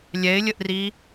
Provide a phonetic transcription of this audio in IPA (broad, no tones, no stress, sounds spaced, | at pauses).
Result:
lʲ ɛ ɪ̯ lʲ ə ʔ r i